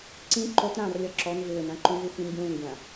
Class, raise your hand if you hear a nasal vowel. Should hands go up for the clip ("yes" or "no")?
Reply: yes